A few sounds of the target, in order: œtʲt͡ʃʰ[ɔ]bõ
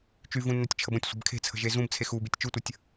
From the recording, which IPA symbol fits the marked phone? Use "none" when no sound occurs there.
ə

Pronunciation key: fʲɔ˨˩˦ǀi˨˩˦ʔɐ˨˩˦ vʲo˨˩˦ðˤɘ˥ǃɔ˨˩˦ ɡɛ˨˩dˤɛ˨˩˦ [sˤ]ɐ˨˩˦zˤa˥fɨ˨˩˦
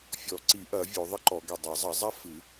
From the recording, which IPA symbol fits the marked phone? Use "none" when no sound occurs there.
zˤ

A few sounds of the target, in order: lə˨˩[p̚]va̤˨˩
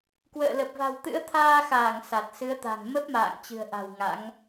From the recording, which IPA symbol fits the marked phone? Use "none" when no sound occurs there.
p̚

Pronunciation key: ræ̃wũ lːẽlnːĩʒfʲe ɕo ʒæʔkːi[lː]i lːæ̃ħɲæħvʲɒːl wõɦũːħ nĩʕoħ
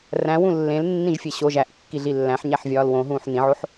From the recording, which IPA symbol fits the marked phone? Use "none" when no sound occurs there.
ɮ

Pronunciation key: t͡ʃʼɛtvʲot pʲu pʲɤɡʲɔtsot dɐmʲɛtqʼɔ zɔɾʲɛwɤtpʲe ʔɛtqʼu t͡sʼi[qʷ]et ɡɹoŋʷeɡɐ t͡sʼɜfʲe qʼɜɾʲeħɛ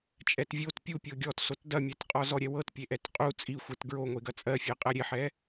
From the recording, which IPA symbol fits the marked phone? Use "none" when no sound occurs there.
xʷ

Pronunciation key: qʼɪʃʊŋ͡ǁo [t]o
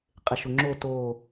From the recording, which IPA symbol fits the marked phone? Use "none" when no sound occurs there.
t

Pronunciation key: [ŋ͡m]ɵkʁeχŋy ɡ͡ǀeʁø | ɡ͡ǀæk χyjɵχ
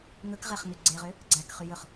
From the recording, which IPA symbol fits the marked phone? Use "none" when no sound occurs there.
ŋ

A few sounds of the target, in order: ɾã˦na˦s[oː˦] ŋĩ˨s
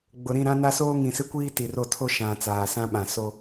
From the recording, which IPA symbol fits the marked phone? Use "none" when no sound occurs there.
oː˦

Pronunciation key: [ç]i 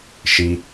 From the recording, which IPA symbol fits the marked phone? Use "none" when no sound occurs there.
ʃ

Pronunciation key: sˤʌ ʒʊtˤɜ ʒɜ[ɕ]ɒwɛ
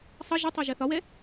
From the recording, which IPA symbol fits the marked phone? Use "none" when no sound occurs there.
θ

